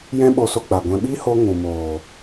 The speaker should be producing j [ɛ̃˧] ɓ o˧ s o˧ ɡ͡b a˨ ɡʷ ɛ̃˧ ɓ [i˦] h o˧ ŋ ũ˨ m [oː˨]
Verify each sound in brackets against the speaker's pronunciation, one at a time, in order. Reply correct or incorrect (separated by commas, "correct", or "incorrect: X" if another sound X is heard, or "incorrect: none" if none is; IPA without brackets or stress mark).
incorrect: ɛ̃˦, correct, correct